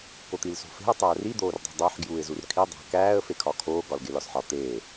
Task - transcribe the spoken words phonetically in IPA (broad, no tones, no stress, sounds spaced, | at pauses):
k o t̪ i l s o̤ f e̤ ə̯ tˤ æː r i d̪ oː r dˤ ṳ dˤ æ ħ ɡ j uː ɪ̯ z u r kʰ i dˤ æ̤ k æː ə̯ f e kʰ ɒ kʰ oː ɡ ɒ l ɡ e l ɒ s ħ ɒ t̪ eː